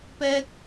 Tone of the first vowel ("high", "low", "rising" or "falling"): high